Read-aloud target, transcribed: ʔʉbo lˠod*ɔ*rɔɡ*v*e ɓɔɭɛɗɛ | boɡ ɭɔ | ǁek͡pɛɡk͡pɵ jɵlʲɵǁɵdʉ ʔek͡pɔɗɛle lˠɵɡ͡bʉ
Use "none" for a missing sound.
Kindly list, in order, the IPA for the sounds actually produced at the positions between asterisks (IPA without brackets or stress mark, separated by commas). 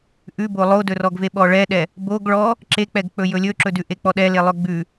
ɵ, v